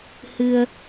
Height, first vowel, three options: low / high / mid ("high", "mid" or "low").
high